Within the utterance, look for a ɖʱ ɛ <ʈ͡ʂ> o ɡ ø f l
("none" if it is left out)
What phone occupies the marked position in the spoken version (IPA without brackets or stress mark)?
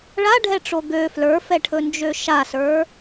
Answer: ʈ͡ʂ